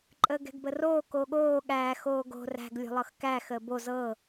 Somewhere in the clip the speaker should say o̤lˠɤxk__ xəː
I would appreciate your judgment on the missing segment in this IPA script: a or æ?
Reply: æ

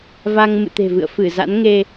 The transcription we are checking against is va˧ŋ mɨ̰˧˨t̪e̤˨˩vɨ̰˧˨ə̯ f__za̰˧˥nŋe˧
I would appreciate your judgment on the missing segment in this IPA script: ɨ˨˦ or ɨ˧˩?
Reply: ɨ˧˩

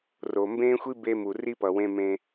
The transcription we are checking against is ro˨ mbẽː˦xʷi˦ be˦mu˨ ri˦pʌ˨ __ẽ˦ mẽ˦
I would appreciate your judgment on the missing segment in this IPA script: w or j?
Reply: w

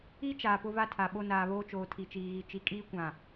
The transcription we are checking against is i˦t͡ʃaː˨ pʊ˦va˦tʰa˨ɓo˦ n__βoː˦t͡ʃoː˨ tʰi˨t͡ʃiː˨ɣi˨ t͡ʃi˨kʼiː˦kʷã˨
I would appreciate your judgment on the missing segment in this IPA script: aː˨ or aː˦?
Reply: aː˨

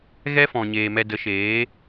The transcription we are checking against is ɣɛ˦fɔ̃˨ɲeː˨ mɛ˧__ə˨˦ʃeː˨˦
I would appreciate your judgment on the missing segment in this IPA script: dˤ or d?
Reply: d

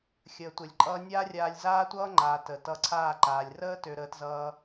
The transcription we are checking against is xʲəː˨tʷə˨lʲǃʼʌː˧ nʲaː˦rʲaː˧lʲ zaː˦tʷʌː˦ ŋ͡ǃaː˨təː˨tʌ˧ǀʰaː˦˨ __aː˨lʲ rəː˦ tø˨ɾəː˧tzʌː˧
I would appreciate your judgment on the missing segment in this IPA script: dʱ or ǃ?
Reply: ǃ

